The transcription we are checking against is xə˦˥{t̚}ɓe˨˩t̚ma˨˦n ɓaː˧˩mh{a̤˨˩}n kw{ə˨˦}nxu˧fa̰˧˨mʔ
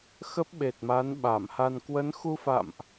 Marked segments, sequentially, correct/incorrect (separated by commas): incorrect, incorrect, correct